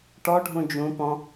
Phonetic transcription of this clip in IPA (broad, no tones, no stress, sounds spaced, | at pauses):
ʈ ɔ ɖʱ ũ d͡ʒ ũ p ɔ̃